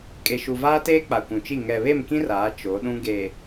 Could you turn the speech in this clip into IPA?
kʼ e˨ ʃ u˨ v aː˦ t eː˦ k͡p a˨ kʷ ũ˨ t͡ʃ i˦˨ ŋ ɛ˨ β e˦˨ m k ĩ˦ r aː˨˦ t͡ʃ o˨˦ ɗ ũ˦ ɡ e˨

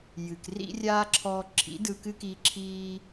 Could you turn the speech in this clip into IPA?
j ɨ˨ k r ḭ˦ rʲ aː˦ ǁʰ ɔː˧ ǁʰ ḭ˨˦ d ɯ˧ k ɨ˦ k iː˧ ǁʰ iː˦

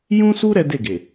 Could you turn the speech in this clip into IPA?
j ũ˦ s u˦ ɾ ɛ˦ d e˦˨ ɡ e˨

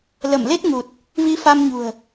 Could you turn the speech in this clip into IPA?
l ə˧˩ m l e˦˥ t̚ ŋ u˨˩ t̚ | v i˧ f a˧ m ɲ ṳ˨˩ ə̯

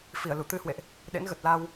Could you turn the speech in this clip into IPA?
f i˧˩ ə̯ l u˧˩ t̪ ɨ˧ h w ḛ˧˨ ʔ | ɗ ḛ˧˥ n ɣ ə˨˩ t̚ l a˧ w

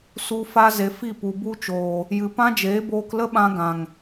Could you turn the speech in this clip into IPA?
s u˧ f a˧ z e˨ f i˦˨ p u˨ b u˦ t͡ʃ oː˨ | j ɨ˨ p ã˦ d͡ʒ eː˨˦ b oː˧ k l ə˦ ɓ ã˧ ɡ ã˨ ŋ

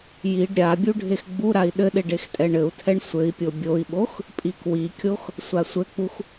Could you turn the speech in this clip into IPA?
j i ɖ ɾʲ a bʲ u ɖʱ e x ɡ͡b u ɾ a i̯ ɗ ɘ ɗ e ɖ e x tʼ ɛ ɳ ɘ u̯ tʰ ɛ ɳ sʷ ɘ i̯ pʲ o bʲ o i̯ ɓ o x | pʼ i k w i kʲ o x | sʷ a sʷ ɘ k͡p u x

